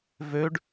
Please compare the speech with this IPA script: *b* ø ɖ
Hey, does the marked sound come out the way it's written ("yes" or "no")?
no